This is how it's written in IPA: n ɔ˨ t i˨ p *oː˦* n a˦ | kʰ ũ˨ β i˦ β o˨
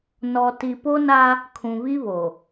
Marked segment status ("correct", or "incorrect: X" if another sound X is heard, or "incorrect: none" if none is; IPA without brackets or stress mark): incorrect: o˦